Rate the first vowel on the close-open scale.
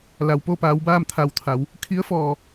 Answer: open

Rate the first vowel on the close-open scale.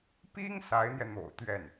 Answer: close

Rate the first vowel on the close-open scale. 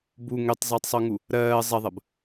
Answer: close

